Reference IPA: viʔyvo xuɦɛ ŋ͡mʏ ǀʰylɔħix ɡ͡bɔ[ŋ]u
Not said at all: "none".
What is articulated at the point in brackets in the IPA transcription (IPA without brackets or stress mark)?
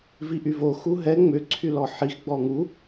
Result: ŋ